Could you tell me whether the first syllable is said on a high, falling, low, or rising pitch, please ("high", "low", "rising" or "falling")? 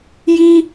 high